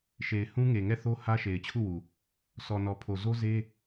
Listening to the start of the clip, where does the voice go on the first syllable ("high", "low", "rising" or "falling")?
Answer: low